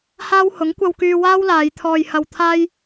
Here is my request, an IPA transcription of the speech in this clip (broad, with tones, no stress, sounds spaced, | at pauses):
h aː˥ w h ʊ˨˥ ŋ kʷ ɐ˧ w k yː˧ w aː˥ w l aː˨˧ j t̪ʰ ɔː˧ j h ɐ˧ w t̪ʰ aː˥ j